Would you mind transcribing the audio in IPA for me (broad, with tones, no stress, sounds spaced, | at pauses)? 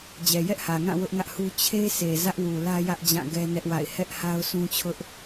d͡ʑ ɛ˨ j ɛ˦ ʔ h ä˨ ŋ ã˦˨ w ʊ˦ ʔ ŋ ä˦ ʔ h u˦ t͡ɕʰ e˦ s e˨ z ä˦ ʔ w u˨ l ä˦ j ä˦ ʔ d͡ʑ ã˦˨ ɡ ɛ˦ n ɛ˦ ʔ w a̰˦˨ ɪ̯ h ɛ˦ ʔ h a˦ ʊ̯ sʰ ũ˦ t͡ɕʰ ʊ˦ ʔ